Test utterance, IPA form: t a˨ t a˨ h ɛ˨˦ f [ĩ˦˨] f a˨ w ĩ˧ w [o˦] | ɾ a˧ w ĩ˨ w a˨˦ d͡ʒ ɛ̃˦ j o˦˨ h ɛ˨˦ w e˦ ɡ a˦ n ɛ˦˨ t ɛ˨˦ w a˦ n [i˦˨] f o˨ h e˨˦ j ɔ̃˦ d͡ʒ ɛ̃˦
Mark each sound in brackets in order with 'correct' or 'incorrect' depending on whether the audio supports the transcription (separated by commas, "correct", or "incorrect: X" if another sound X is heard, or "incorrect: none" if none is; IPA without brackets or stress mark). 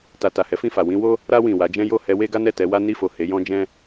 correct, correct, correct